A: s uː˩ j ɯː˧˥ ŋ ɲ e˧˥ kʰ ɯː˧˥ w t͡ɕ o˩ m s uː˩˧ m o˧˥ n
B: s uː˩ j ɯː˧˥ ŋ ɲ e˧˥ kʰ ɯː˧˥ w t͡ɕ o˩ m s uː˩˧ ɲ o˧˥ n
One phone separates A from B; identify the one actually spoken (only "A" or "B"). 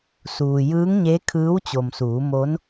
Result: A